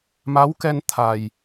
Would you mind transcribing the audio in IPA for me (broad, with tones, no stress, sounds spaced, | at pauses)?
m a˨˦ w k ɛ˧ n t̪ʰ a˨˩ j